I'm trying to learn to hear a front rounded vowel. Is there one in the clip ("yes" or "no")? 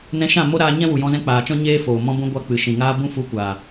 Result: no